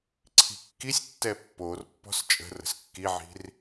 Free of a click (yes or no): no